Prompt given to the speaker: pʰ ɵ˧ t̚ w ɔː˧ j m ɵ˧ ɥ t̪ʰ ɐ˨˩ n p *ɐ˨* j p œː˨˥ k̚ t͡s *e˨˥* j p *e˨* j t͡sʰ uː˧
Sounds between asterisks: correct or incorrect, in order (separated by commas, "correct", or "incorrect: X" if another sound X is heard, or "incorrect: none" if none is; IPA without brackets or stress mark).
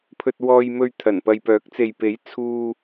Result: correct, incorrect: e˨, incorrect: e˨˥